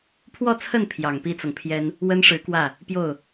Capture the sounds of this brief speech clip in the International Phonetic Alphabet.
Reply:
pʰ w ɔ˥˧ t͡sʰ ə˥˩ n pʰ j ɑ˨˩ ŋ p i˥ t͡s ɤ˨ ŋ pʰ j ɛ˥ n | w ə˥ n ʂ ɻ̩˧˥ k w ä˥˩ | p j o˥˩ ʊ̯

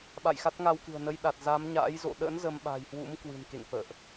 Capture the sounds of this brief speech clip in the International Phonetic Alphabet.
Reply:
ɓ a̰˧˨ j x a˦˥ t̚ ŋ a˧ w k ɨ̤˨˩ ə̯ n ə˧ j ɗ a˨˩ t̚ z a˨˦ m ɲ a̰ː˧˥ j z o̰˧˨ ɗ ə̰˧˥ n z ə˧ m ɓ a̤˨˩ j h w ṵ˧˥ m k w ɨ̤˨˩ n k ḛ˧˨ ŋ f ə̰ː˧˨ ʔ

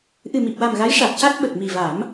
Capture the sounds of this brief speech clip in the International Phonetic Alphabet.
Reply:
ʔ ɨ˨˩ m i˨˩ p̚ w a˨˩ m ɣ a˧˥ j ʂ a˨˩ t̚ c a˦˥ t̚ ɓ ə˨˩ k̚ m i˨˩ v a˨˩˦ m

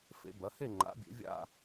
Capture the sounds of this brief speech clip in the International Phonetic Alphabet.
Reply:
f ḛ˨˦ b ɐ˨˦ h e˥˧ ŋ͡ǃ a̰˨˦ bʲ ḛ˨˦ vʲ a̰˥˧

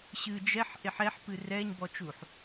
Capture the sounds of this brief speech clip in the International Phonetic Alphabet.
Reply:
ɕ ɨ d͡ʒ ɛ ħ ʔ e ħ ɛ ħ p ɨ r ɛ ɲ b ɔ t͡ʃ u ħ

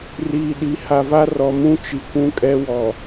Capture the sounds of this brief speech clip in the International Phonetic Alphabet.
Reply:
r iː˨ ɗ i˨˦ h a˨ v a˦ r ɔ˨ m ũ˦ t͡ʃ i˨ kʷ ũ˦ kʼ ɛ˦ w ɔ˨

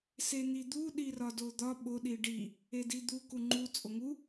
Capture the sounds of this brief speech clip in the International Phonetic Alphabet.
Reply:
s e n̪ i d̪ u ɗ i r ɒ d o d̪ ɒ ɓ o ɗ i ɖ i | e d i d̪ u k u ŋ͡ǃ u t͡sʼ o ŋ u

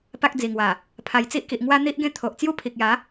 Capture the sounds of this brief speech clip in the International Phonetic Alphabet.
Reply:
p a˦ k̚ d͡z i˨˩ ŋ w a˨˩ | pʰ a˨˩ j t͡s i˦ ʔ k i˨ ʔ ŋ w a˦ n̪ i˦ ʔ ɡ ẽ˦ t̪ʰ o˨ ʔ t͡s j u˦ pʰ i˨ k̚ j a˨˦

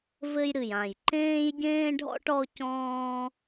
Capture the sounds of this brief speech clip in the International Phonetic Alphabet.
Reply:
v ɘ˦ j ɾ ɨ˨˩ j ã˨˩ j ǃ ẽː˦ j ɟ ẽː˦ ɖʱ ɔ̰˦ ʈ ɔ˦ c ɔ̃ː˦

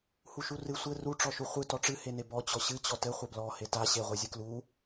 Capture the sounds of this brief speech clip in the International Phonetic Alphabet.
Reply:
h u ʃ u r ɨ sʷ ɘ r u ʈ͡ʂ ɔ ʃ u χʷ ɨ t ɔ ʈ͡ʂ ɨ h e n e b ɔ t͡ɕ ɔ ɕ ɨ t͡ɕ ɔ t ɘ χʷ ɘ b l ɔ h e t a ɕ e ʁʷ e zʲ ɨ k l u

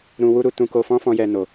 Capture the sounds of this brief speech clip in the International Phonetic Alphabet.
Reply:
ɾ ũ˧ w u˦ ɾ u˧ t ũ˧ k o˧ f ɔ̃˦ f ɔ̃˧ j ɛ˧ n o˨

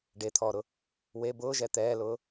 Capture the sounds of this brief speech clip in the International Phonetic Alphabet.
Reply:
ɖ e t̪ʰ ɔː ɾ ʊ | w e b ʊː ʒ ɛ t̪ ɛː l ʊː

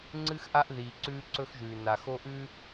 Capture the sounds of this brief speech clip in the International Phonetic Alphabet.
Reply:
ŋ͡ǀ ɨ˦ x ʔ a˦ ʔ ð iː˨ ǀ ʉː˦ ǀ ɵ˦ x ʒ ʉː˨ n a˨ x o˦ ʔ ʉ˦

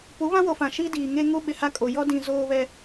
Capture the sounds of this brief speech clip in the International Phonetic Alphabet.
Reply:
p u˨˦ β ã˦ w o˨ f ã˨ ʃ i˦ d iː˨ ŋ e˦ ŋ u˦ ɓ ɪ˨ h a˦ kʼ o˨ j ɔ˦ d ĩ˨ z oː˦ β ɛ˦

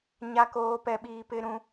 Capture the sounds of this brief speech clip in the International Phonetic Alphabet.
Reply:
ɲ a˨ k oː˨ p ɛ˨ ɓ iː˨ p ɪ˦ ɾ ũ˦

